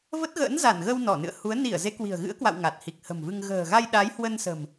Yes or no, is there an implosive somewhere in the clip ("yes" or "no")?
yes